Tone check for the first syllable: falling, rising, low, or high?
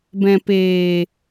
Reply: low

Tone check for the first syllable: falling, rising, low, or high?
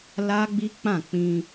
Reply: high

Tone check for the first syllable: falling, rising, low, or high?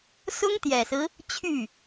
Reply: high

